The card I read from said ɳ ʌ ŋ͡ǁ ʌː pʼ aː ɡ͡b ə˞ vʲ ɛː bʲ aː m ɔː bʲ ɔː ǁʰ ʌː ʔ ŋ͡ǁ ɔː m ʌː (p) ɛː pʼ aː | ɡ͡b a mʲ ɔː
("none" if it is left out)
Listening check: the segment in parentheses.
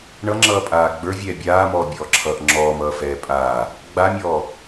f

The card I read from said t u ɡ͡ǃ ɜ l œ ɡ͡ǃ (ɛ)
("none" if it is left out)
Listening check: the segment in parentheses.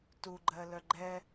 ɛ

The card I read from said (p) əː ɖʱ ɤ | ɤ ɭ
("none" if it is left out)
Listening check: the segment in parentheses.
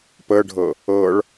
p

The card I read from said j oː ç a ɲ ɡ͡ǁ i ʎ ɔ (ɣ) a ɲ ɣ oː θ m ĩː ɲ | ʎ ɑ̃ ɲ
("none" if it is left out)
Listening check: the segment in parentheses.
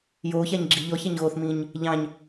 ç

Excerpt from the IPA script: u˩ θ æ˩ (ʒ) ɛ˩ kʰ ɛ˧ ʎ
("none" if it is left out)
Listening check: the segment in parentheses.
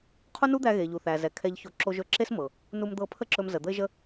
z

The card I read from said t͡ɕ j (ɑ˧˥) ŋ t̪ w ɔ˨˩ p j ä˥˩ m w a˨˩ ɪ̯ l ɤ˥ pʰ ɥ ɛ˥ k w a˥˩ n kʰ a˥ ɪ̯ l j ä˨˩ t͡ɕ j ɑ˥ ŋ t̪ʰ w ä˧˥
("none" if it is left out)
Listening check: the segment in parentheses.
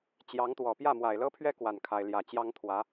ɑ˧˥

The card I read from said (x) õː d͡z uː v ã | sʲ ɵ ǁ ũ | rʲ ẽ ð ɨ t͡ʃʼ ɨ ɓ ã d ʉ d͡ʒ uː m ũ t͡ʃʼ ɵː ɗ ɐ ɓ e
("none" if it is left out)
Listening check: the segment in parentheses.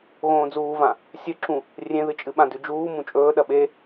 ɣ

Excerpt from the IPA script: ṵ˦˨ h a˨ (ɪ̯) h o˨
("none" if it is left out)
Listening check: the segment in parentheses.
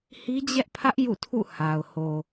ʊ̯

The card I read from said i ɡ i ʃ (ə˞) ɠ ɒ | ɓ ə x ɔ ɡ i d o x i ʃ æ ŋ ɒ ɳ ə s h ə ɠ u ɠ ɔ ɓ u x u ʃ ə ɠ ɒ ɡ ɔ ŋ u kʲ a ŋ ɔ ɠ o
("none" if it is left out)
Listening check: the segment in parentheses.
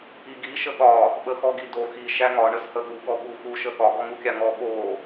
ə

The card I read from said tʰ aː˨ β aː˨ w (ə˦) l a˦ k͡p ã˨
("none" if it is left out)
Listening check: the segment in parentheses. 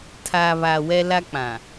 ɛ˦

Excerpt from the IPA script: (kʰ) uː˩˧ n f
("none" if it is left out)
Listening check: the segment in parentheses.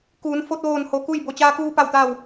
k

